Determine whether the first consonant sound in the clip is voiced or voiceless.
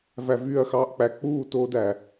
voiced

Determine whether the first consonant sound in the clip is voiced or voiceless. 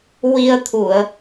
voiced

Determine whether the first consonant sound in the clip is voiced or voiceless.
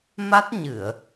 voiced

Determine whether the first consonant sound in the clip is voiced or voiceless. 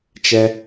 voiceless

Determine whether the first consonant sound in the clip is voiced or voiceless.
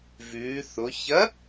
voiced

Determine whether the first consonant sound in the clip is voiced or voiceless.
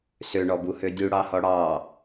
voiceless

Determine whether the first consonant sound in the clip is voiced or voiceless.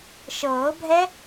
voiceless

